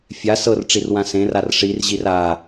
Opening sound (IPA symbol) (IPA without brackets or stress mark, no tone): fʲ